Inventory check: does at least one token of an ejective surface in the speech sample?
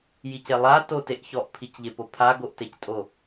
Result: yes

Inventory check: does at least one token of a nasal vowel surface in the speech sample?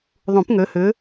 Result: yes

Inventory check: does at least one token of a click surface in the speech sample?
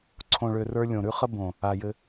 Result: yes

